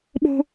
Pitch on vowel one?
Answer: high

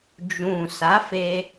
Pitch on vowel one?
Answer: low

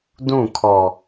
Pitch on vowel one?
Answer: falling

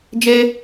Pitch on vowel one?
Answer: high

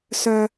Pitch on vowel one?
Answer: low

